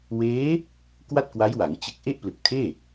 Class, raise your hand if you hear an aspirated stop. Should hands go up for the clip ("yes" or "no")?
yes